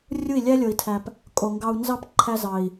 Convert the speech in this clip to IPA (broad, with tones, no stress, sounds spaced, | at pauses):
rʲ u˦˨ i̯ lʲ æ˦ lʲ o˨ i̯ tʰ æ˨ p | kʼ o˨ ŋ ɡ ɑ˧ u̯ n z ɑ˦ p ǃʰ æ˦ z ɑ˨ i̯